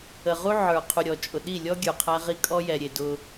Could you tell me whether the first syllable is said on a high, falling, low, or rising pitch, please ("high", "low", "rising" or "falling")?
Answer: low